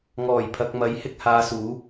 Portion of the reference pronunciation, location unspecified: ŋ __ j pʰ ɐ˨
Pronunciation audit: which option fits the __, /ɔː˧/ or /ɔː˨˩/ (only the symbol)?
ɔː˨˩